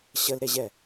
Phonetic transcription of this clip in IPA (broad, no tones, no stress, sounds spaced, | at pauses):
ɕ ə l ɾ e ʑ ɛ